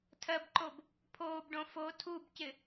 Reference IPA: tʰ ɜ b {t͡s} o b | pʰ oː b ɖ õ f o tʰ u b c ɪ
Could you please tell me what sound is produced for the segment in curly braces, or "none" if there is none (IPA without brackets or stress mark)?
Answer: ǃ